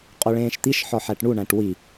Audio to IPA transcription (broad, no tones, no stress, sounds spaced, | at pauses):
qʼ o ɭ ẽː ʃ t̪ i ʃ ħ ɒ ħ æ ʈ ɳ u ɳ æ̃ ʈ w i